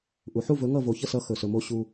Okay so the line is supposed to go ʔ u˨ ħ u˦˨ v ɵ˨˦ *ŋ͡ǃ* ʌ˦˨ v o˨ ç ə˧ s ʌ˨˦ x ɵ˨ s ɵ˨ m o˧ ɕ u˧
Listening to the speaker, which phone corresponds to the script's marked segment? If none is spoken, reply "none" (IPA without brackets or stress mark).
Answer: ŋ